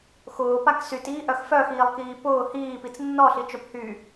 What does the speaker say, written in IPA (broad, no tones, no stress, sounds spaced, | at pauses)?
x ʊː p a k s y t iː ʔ œ x f œ x iː lˠ k iː p ʊː h iː p i t͡s nː ɔ ɬ i t͡ʃ œ p h y